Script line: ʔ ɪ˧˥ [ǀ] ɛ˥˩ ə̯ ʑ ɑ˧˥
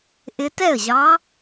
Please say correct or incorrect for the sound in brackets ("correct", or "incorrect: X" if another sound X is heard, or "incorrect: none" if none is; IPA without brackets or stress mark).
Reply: incorrect: t